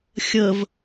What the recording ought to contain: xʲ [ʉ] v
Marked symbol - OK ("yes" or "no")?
no